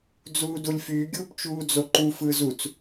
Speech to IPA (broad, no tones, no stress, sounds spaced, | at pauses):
d͡z uː d u lʲ f yː ɡʲ uː p t͡ʃ uː d͡z o ǃ u f ɯː z u t͡s